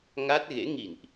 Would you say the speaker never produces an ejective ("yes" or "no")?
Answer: yes